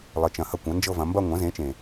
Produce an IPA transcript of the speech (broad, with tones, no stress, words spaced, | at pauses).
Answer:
lˠə˩˧t͡ʃɐ̃˩ hɐ˥˧kʷɐ̃˩˥ nd͡ʒɤ˥˧vɐ̃˩˧ mbɐ˥˧ ŋʷɐ̃˩˥zẽ˩˥t͡ʃẽ˩